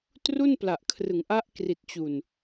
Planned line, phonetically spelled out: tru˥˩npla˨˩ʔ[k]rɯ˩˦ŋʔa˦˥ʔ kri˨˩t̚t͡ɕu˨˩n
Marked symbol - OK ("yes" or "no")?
no